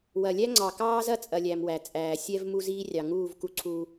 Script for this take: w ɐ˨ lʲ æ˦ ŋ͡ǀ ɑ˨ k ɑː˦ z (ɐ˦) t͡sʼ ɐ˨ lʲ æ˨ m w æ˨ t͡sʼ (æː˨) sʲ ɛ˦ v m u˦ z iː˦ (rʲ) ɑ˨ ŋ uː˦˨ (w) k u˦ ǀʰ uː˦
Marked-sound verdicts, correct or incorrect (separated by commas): correct, correct, correct, incorrect